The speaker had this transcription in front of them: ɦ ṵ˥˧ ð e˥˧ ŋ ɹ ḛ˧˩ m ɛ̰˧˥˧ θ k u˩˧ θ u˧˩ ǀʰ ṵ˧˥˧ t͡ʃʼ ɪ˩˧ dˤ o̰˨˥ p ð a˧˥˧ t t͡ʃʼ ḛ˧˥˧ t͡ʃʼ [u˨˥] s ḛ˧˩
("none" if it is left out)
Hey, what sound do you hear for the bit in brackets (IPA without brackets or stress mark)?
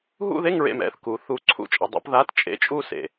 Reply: u˥˧